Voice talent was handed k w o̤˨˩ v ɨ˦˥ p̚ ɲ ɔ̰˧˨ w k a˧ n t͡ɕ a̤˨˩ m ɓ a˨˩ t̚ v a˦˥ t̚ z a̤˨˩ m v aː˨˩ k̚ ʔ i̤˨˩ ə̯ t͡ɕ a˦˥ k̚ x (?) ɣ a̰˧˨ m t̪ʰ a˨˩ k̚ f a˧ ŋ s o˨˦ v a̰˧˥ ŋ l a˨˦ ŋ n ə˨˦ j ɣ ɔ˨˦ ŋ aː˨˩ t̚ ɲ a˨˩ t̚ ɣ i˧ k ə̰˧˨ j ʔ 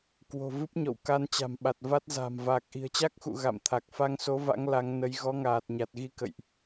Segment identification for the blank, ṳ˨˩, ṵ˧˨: ṵ˧˨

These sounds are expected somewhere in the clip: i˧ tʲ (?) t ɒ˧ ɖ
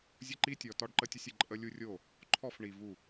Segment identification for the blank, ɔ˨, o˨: ɔ˨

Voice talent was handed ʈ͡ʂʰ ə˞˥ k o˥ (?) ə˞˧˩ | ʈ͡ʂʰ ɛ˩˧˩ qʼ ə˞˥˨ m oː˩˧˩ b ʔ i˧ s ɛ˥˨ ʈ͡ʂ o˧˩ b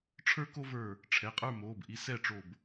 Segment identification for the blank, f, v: v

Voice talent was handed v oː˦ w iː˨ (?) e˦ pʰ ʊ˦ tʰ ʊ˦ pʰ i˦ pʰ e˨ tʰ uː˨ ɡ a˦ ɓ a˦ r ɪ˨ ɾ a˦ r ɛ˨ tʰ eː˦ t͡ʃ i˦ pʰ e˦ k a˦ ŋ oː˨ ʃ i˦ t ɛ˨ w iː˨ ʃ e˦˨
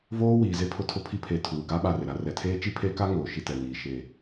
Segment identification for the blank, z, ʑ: z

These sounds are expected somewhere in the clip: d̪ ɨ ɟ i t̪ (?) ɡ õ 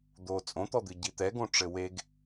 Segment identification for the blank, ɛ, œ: ɛ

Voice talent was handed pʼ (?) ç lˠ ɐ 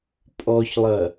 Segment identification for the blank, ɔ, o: ɔ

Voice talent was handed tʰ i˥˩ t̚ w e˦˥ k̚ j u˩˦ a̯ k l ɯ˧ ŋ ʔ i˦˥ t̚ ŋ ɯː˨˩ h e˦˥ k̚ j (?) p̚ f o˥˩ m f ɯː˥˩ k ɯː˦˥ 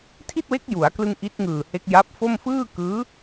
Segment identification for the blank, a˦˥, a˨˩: a˦˥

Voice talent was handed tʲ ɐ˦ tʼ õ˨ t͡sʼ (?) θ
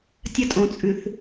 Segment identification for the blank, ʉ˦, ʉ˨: ʉ˨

